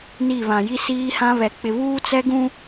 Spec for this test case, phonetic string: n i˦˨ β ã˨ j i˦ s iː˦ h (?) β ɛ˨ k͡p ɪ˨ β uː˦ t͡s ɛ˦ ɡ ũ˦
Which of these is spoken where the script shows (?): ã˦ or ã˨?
ã˦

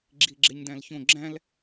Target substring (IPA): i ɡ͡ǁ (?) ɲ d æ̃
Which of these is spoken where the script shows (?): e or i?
e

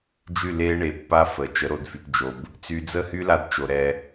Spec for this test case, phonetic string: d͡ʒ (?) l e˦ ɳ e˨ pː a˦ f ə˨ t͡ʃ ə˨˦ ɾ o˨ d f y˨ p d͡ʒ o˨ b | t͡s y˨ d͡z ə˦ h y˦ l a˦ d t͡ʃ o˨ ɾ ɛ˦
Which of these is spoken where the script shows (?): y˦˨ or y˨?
y˦˨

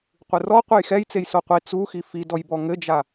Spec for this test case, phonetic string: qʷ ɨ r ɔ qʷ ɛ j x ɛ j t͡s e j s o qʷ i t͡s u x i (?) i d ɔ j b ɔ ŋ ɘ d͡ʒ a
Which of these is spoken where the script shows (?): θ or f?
f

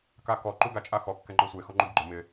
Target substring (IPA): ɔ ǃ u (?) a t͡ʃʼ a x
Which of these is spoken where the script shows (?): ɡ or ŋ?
ɡ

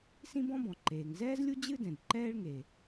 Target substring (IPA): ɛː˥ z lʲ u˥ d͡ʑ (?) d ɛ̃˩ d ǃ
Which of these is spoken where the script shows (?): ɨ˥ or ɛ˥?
ɨ˥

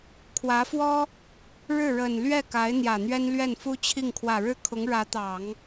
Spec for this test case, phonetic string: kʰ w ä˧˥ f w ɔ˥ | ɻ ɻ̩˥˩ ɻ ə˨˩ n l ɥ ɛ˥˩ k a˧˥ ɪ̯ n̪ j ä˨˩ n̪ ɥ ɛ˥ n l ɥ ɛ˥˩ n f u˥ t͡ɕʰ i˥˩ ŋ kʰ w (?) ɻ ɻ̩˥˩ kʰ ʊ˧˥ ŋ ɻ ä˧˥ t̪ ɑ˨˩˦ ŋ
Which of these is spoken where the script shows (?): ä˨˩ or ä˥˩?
ä˨˩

